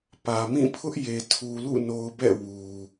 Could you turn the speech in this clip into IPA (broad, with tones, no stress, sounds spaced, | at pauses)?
p ä˨ m ĩ˦˨ pʰ ʊ˦ ʔ j e˨ tʰ u˨ l ṵ˦˨ n o˨ ʊ̯ b ɛ̰˦˨ w u˨